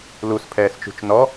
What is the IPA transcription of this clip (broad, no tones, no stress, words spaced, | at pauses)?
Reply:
luspʰɛːst͡ʃṳt͡ʃ nɔ